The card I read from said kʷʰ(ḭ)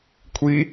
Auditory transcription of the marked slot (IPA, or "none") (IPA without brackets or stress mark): i